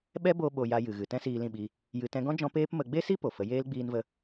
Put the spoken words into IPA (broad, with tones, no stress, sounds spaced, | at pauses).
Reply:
ɓ ɛ˦ b o˧ ɓ o˨ j a˧ j ɨ˨ ɣ ɨ˨ t ɛ̃˦ s iː˧ l ĩ˦˨ ɓ i˧ | j ɨ˧ t ɛ̃˦ ɡ ɔ̃˦ d͡ʒ ɔ̃˦ p eː˦ p m ə˧ ɡ͡b e˦ s i˦ p o˨ f ə˨˦ j eː˦ l ɡ͡b iː˧ n v ə˧